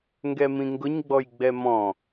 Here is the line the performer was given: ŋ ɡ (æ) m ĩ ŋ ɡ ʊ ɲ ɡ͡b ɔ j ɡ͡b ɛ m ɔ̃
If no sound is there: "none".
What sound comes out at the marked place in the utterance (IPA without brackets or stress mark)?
ɛ